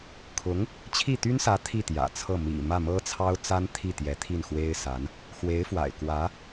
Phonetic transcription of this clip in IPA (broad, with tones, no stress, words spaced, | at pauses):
kʰʊ˧˥ŋ | t͡ɕʰi˥˩t̪y˥nsä˧˥ t̪ʰi˥˩t̪jä̰˨˩t͡sʰɤ˥˩ mḭ˨˩ mä˥˩mɤ˥t͡sʰɑ˥ʊ̯t͡sa˥n t̪ʰi˥˩t̪jɛ˧˥ t̪ʰi˥˩nxwe˥ɪ̯sa˧˥n | xwe˧˥ɪ̯fwa̰˨˩ɪ̯ kwä˧˥